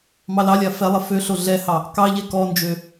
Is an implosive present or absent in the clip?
absent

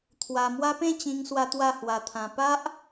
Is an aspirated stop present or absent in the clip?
present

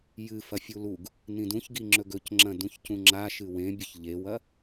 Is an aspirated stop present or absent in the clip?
absent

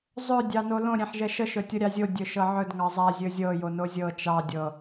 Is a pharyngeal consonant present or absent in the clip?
present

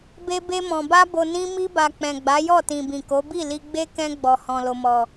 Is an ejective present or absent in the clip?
absent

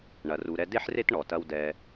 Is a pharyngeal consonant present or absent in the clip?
present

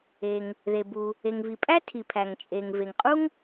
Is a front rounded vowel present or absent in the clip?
absent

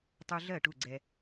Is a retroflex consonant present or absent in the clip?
present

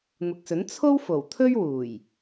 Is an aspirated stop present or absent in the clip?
present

